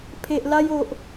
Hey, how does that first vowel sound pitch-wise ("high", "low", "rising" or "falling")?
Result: low